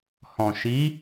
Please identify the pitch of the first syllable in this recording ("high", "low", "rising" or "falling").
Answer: low